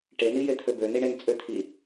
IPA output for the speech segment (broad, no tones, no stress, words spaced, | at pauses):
ʈenijet̪ʰø bøniɳen t͡sʼøt̪ʰi